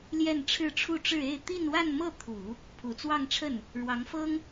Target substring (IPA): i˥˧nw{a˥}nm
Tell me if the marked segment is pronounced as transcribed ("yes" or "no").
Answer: no